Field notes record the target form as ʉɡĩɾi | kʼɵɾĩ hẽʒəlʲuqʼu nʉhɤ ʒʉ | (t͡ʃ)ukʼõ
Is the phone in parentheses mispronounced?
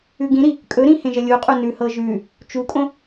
no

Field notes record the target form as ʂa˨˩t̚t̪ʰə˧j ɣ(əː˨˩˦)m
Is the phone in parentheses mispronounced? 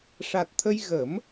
yes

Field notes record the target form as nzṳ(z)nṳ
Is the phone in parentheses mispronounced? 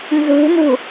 yes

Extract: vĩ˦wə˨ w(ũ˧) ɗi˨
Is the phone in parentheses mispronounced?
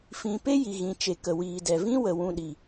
no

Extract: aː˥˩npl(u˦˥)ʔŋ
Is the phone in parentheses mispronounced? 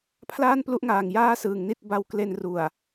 no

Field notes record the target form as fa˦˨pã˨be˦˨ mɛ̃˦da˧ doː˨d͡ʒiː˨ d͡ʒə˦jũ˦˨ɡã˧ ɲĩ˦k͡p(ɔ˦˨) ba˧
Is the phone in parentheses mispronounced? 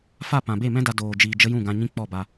no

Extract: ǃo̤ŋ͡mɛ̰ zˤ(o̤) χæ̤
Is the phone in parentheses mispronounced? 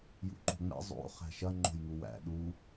yes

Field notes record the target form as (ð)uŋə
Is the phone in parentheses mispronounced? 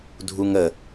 yes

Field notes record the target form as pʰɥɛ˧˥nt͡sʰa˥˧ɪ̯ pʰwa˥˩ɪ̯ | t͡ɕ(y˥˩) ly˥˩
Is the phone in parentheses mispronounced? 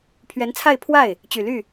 yes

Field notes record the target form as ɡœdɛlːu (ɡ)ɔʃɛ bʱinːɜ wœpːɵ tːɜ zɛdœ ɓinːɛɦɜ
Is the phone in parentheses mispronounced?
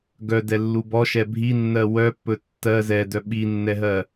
yes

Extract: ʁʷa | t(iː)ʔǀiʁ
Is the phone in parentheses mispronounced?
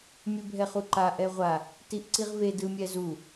yes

